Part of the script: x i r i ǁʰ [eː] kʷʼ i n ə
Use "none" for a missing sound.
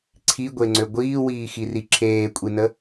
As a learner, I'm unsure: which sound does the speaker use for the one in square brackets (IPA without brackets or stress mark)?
eː